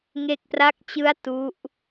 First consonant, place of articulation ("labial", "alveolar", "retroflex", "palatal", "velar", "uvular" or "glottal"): velar